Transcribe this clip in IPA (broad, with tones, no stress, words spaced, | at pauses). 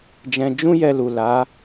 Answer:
d͡ʒɛ̃˧ d͡ʒũ˦jɛ˧lu˨ la˨˦